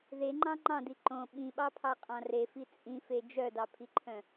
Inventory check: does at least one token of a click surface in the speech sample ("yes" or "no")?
yes